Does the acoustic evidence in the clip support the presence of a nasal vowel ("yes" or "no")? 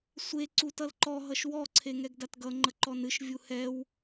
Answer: no